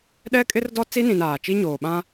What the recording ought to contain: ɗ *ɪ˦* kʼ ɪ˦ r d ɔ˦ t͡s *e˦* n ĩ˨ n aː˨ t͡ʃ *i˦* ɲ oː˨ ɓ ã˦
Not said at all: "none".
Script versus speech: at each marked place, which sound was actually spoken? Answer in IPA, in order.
ɛ˦, i˦, i˦

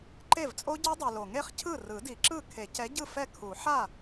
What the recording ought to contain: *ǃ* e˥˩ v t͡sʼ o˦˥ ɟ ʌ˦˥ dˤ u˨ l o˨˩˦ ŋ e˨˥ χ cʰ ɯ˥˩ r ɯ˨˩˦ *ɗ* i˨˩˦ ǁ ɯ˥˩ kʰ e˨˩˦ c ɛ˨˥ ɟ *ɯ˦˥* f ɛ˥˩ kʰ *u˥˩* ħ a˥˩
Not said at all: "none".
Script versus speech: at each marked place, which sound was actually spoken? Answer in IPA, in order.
ǃ, d, ɯ˥˩, u˨˩˦

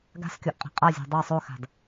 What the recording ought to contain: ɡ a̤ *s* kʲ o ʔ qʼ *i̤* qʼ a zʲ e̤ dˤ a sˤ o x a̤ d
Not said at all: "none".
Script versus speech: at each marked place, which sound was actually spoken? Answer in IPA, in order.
s, e̤

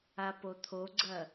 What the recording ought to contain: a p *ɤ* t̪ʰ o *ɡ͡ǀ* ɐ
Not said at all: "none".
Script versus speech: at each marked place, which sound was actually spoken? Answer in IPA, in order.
o, ɡ͡ǀ

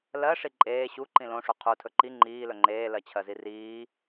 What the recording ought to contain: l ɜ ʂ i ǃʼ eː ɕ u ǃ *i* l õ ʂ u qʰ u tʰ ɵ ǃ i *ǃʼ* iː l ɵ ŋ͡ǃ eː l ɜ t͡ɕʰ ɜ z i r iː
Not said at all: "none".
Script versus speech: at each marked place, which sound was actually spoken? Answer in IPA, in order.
ĩ, ŋ͡ǃ

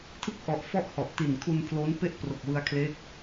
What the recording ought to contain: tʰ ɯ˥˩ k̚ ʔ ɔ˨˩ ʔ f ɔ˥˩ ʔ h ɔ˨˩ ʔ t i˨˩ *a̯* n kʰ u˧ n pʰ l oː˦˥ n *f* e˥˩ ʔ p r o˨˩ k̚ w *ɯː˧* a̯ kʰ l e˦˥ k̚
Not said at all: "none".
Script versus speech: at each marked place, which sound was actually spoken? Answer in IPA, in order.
none, p, ɯ˧

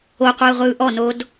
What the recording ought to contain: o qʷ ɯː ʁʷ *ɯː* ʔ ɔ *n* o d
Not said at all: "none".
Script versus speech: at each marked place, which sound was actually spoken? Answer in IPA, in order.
ɯː, n

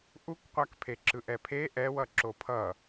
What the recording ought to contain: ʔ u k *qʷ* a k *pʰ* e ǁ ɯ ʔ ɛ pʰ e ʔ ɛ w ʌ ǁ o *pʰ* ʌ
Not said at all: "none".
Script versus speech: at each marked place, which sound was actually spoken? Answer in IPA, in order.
qʷ, pʰ, pʰ

